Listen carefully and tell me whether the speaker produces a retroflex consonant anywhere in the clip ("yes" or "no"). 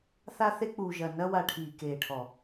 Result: yes